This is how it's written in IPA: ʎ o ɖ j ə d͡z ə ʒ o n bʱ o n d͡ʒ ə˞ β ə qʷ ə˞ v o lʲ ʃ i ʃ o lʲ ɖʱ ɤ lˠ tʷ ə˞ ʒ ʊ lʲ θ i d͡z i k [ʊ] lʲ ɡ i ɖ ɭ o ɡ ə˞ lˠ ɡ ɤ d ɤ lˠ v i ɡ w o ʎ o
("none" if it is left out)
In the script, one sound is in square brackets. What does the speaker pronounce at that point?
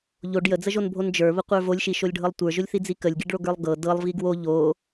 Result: ə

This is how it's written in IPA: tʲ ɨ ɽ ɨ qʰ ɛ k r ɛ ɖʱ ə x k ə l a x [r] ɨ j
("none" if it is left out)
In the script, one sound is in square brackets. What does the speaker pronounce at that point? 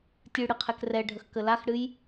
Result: ɽ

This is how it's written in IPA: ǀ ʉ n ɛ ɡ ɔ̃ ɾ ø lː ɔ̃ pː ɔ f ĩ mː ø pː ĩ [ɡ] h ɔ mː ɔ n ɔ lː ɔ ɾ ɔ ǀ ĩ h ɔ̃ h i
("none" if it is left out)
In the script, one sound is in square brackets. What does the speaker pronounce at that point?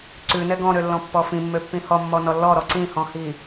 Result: none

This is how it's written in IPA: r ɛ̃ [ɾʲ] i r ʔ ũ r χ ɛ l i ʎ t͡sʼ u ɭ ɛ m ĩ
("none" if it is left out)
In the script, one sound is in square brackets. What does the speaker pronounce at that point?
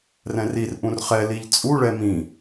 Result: r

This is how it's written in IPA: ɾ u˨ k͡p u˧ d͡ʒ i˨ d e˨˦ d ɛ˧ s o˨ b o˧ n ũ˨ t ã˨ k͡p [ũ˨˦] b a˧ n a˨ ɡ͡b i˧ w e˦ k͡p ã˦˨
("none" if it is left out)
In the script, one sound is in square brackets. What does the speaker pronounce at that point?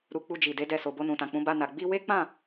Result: ũ˨˦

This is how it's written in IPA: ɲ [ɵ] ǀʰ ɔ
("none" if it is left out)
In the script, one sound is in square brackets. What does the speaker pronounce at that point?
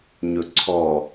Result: ɵ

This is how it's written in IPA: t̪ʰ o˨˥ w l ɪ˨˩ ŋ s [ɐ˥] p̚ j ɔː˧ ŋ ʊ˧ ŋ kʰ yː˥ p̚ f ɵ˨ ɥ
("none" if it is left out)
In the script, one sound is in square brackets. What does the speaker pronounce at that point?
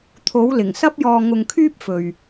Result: ɐ˥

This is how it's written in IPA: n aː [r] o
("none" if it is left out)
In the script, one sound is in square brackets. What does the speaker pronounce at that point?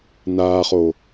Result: χ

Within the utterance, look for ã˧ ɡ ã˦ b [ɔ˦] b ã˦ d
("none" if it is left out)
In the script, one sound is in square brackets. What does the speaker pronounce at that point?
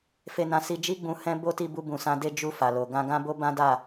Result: o˦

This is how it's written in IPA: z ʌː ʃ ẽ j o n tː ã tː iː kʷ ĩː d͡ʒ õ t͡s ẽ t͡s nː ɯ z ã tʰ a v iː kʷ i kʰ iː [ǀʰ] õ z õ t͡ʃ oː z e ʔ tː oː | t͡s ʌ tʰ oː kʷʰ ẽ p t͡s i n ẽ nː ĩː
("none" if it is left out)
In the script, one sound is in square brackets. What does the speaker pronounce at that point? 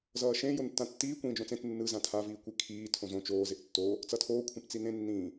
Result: tʰ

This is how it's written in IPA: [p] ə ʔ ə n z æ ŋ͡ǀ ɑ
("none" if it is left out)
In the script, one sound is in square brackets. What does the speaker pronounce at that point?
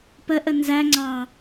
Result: p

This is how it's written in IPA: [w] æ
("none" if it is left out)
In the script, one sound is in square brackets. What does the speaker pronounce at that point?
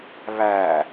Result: β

